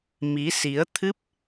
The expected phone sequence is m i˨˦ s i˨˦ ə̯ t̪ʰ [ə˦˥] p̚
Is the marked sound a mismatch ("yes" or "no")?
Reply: yes